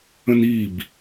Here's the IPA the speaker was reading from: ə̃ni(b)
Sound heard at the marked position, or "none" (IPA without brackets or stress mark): b